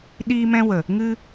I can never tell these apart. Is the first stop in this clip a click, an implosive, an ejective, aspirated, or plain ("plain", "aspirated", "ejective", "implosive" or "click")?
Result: implosive